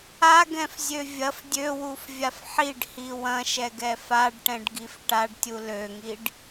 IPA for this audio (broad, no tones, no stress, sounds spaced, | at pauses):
a ɡ ɛ̃ f zʲ ø vʲ ɐ f dʲ ø w u f vʲ a f ħ i ɖ h i w ɐ̃ ʃ ɛ ɡ ɛ f a ɖ ʈ ɛ̃ ɖ ɡ i f ʈ a ɖ tʲ u l ø ŋ i ɖ